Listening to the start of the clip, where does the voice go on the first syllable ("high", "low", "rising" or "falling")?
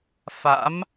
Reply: rising